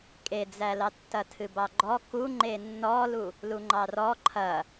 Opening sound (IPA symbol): kʼ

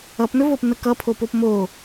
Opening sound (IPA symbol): ʌ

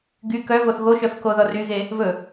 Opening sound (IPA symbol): ɡ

